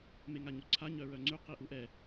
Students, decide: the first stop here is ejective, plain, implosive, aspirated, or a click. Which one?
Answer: click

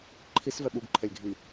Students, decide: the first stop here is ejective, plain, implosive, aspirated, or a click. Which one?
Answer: click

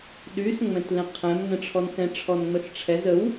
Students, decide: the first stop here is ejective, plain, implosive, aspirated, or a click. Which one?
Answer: implosive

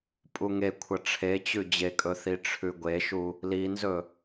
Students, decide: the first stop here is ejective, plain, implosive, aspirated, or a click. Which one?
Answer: ejective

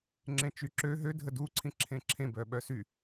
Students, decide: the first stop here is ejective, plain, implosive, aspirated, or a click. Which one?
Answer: click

